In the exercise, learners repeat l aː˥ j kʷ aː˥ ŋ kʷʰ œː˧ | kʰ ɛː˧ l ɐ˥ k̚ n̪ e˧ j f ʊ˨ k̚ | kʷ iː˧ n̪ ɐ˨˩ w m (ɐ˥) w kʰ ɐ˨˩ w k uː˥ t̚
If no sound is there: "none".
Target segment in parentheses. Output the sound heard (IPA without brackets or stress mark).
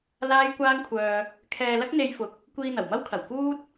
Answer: ɐ˥